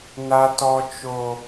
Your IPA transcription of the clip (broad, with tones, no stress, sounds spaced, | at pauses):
n a˦ t ɔ˦ t͡ʃ o˦